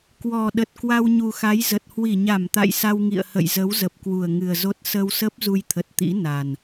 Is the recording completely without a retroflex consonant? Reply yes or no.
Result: yes